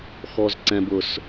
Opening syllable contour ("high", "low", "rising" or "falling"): high